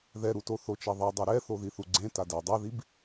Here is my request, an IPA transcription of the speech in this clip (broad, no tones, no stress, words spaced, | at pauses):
ðɛɾuto θot͡ʃɛðˤidˤi ɾɛθo ðiθuɡ͡ǀẽ tadɛ dˤaðib